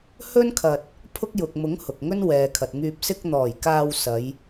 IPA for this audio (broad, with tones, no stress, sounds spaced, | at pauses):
h ɵ˥ n kʰ ɐ˧ t̚ | pʰ ʊ˥ k̚ j ʊ˨ k̚ m ʊ˨˥ ŋ h ʊ˨ k̚ ŋ ɵ˥ n w ɛː˨ kʰ ɐ˨ t̚ ŋ yː˧ p̚ s ɪ˧ k̚ n̪ ɔː˨˩ j k aː˧ w s ɐ˨˧ j